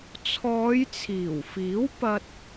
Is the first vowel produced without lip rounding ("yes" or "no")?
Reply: no